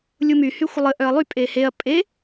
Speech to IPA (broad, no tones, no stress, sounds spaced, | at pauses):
lʲ u m y h y xʷ ə lˠ ə ʔ œ ɐ̯ lˠ y pʼ e h e ɐ̯ pʼ e